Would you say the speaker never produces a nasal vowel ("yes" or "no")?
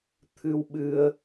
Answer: yes